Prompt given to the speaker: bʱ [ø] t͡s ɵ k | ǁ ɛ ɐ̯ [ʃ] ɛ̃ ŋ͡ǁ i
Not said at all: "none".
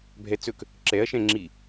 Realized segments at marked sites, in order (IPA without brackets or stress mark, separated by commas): ɛ, ʃ